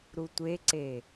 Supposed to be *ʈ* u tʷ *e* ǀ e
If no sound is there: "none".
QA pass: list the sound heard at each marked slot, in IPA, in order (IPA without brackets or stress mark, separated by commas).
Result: ɾ, e